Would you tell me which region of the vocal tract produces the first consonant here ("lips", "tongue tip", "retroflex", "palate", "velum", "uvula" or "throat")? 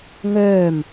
velum